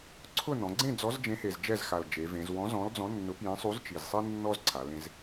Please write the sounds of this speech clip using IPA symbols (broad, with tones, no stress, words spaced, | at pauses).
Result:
ǀʰʊ˥˨ nɔ̃˩˧ɡ͡ǀẽ˥˨ d͡zɔ˨˥zd͡ʒẽ˨˥he˨˩z d͡ʒɛ˥˨zxa˨˩ld͡ʒe˩˧vẽ˩˧z wɔ̃˨˥zɔ̃˨˥ld͡zɔ̃˨˥ nːʊ˨˥pjẽ˨˥ sˤu˨˥zt͡ʃi˨˩zsˤi˦ nːɔ˦zǀʰa˩˧lẽ˩˧z